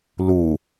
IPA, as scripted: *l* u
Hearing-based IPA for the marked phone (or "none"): l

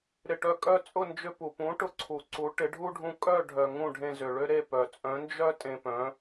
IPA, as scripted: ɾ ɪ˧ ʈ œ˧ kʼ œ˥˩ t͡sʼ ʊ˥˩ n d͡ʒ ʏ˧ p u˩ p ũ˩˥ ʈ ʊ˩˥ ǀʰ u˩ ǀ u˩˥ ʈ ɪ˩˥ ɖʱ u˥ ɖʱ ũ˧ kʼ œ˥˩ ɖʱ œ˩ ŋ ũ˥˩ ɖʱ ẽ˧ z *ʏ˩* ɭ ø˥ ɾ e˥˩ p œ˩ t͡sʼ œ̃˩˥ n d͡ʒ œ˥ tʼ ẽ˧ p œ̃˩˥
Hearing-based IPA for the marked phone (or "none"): ʏ˩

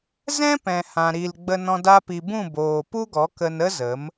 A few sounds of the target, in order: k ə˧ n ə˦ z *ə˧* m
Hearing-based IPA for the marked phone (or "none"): ə˨˦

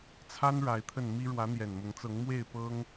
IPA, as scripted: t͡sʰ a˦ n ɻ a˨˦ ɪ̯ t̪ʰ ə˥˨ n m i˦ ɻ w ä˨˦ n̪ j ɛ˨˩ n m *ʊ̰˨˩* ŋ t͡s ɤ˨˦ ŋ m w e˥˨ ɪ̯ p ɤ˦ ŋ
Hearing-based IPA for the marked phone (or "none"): ʊ˨˦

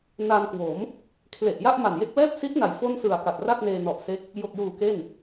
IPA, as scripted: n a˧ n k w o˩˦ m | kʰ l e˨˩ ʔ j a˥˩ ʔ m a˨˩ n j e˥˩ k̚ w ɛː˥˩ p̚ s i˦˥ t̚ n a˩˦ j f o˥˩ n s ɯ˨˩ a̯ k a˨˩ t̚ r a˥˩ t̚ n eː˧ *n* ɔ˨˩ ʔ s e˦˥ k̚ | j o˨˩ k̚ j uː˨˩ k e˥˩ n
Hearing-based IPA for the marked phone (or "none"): n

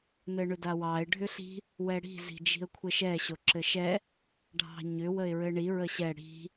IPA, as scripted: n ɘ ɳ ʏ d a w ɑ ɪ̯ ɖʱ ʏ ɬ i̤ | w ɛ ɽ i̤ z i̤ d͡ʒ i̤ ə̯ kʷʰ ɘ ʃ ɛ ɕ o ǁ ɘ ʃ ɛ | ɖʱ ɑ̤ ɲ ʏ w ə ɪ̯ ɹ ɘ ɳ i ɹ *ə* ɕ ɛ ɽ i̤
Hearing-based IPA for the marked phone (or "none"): ə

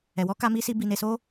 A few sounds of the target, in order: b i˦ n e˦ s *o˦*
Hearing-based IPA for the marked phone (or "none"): o˦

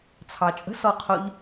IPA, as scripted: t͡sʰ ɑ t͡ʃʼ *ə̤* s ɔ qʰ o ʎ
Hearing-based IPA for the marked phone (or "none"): ə̤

